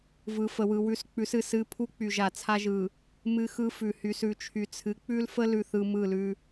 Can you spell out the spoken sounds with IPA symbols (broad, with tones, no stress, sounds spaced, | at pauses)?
v ɯ˨ f ə˨ w ɯ˨ w ʉ˦ s k͡p ʉ˨˦ s ɨ˨ s ɨ˦ pʰ u˦ k͡p y˨ ʒ a˨ t͡sʰ a˦ ʒ ɯ˨ | m ɨ˦ x ɯ˦ f ʉ˨ h y˨ s ʉ˨ t͡ʃʰ y˨ t͡sʰ ɨ˨˦ k͡p ʉ˦ l f ə˦ l ʉ˨ θ ɯ˨ m ɯ˦˨ l ʉ˦